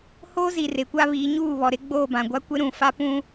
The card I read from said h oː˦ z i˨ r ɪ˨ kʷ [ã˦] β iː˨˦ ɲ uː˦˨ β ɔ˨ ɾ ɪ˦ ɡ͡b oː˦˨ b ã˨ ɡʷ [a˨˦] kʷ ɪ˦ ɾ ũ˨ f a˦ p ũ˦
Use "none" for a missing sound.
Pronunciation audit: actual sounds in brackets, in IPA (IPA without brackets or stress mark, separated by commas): a˦, a˦